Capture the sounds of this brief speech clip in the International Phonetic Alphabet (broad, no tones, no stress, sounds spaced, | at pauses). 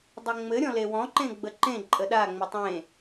dˤ ɘ ŋ͡m ɘ ɾʲ ɔ̃ l e w ɔ̃ ǃ ẽ ɡ͡b ə ǃ ẽ ǃʼ ə ɗ a ŋ͡m ə tˤ ẽ